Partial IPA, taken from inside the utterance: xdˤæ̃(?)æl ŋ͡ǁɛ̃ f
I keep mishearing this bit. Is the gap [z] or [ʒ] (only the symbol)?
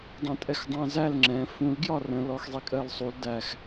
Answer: z